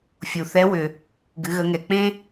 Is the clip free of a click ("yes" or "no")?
yes